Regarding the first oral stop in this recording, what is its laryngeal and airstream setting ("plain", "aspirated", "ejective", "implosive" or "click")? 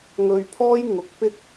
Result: aspirated